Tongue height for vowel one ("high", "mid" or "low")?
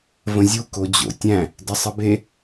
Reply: mid